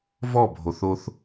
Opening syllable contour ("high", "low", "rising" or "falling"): falling